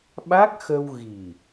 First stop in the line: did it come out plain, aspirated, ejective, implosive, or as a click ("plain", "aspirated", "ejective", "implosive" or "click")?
implosive